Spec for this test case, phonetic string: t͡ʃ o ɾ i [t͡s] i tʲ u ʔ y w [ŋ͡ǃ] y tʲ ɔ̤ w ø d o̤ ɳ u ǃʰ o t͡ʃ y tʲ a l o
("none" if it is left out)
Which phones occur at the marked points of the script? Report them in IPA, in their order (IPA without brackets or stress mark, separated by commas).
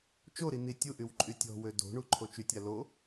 n, ǃʼ